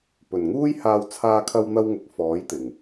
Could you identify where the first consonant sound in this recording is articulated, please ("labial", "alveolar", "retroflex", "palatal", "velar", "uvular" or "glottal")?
labial